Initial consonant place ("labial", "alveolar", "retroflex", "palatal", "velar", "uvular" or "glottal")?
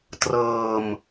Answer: alveolar